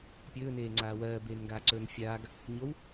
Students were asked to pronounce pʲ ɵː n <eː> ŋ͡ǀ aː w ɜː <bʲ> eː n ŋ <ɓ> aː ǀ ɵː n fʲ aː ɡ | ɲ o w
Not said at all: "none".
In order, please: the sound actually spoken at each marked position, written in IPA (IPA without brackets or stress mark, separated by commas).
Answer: eː, b, ɡ